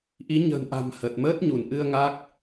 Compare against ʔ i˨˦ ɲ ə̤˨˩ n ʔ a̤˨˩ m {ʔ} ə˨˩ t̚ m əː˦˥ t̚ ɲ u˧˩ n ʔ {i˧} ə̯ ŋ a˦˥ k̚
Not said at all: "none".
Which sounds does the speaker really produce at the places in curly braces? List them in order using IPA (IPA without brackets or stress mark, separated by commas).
h, ɨ˧